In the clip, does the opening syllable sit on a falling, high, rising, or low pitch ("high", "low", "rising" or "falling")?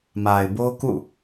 low